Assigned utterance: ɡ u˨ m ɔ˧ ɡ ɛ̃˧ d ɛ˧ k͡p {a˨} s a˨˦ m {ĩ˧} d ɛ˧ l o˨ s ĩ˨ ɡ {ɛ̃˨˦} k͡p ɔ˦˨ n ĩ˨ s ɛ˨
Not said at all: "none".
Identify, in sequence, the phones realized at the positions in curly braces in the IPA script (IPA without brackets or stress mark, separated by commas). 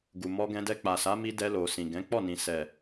a˨, i˧, ɛ̃˨˦